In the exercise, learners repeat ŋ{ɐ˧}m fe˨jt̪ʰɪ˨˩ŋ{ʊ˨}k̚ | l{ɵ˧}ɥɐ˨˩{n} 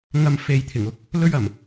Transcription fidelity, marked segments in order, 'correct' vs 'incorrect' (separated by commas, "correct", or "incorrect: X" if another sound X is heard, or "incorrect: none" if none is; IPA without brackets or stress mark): correct, incorrect: ʊ˧, correct, incorrect: m